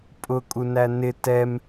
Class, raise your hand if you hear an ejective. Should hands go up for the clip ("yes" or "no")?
yes